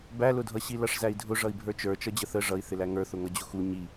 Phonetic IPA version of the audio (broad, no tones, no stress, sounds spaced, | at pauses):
b æ l ʊ dʱ ʌ ɕ i l ʌ ʂ z æ i̯ dʱ ʊ ʐ ʌ i̯ bʱ ə˞ t͡ʃ ə˞ t͡ʃ ʌ d͡ʑ ə θ ə ʐ ʌ i̯ θ ɪ l æ ŋ ə˞ θ ʊ ŋ ʌ d͡ʑ ʊ x u ɲ i